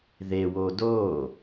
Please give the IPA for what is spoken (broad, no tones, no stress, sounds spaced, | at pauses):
ð e w o d o